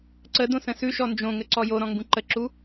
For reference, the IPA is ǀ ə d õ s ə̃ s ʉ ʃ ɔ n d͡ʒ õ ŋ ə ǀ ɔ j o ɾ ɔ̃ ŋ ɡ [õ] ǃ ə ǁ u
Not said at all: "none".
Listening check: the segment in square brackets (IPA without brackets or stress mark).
ũ